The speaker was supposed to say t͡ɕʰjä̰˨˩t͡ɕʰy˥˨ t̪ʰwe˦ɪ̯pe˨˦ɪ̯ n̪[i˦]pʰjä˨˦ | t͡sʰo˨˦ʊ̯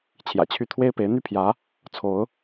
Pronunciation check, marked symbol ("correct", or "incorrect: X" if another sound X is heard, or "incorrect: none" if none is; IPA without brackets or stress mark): incorrect: y˦